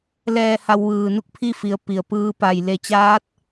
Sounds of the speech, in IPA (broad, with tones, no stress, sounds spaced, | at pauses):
l ɛː˧˩ h a˧ w ʋ ɯː˩ n u˥˨ k̚ pʰ i˥˨ f i˩˧ ə̯ p i˩ ə̯ p ɯː˧ p a˧˩ j l e˩ t͡ɕ aː˧˥ t̚